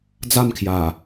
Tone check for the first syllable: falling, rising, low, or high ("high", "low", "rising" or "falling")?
falling